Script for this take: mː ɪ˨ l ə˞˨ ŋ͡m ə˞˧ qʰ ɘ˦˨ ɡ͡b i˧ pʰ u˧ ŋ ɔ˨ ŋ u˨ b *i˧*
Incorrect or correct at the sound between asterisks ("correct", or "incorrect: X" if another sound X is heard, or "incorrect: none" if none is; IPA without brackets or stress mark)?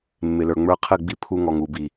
incorrect: i˨